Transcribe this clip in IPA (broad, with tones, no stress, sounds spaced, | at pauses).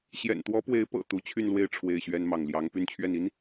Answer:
ɕ j ɛ̰˨˩ n t̪ w ɔ˧˥ p w e˧˥ ɪ̯ p ɤ̰˨˩ t̪ u˧˥ t͡ɕʰ y˥˧ n l w e˥˧ ɪ̯ ʈ͡ʂʰ w e˥˩ ɪ̯ ɕ ɥ ɛ˥ n m ɑ˥˩ ŋ l j ɑ˥ ŋ p y˥˧ n t͡ɕʰ ɥ ɛ˥˩ n i˥ n